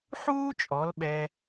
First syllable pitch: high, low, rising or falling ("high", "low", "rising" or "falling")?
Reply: high